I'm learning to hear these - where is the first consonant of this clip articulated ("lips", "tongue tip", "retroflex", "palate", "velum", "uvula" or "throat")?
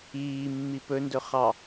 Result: lips